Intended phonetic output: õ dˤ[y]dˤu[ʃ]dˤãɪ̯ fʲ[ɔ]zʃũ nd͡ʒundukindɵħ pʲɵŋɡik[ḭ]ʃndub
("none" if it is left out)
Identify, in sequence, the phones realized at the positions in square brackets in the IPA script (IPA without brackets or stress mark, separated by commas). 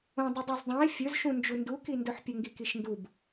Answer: ɨ, z, ɵ, i